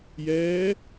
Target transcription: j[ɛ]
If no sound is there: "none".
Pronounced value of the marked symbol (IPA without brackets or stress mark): ɛː